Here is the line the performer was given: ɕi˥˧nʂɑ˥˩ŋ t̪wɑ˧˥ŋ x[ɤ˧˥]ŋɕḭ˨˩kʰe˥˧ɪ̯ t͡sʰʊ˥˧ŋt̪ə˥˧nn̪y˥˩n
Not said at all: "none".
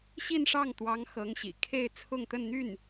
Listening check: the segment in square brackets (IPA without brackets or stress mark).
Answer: ɤ˧˥